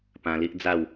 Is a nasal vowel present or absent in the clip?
present